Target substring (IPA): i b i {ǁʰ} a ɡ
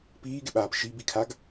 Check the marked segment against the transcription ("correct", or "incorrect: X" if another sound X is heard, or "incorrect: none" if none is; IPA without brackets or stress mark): incorrect: kʰ